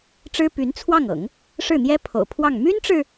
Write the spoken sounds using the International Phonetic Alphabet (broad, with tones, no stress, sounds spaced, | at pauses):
ʈ͡ʂ ɻ̩˥ p y˧˥ n t͡sʰ w ɑ˥˩ ŋ ɤ̰˨˩˦ ŋ | ʂ ɻ̩˥˩ n̪ j ɛ˥ pʰ o̰˨˩ ʊ̯ pʰ w ɑ˥˩ ŋ m y˥ n ʈ͡ʂ ɻ̩˨